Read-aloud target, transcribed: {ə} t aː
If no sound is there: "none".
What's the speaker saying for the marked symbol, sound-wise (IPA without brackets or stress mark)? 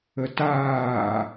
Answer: ə